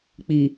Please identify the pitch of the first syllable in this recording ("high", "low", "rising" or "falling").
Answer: low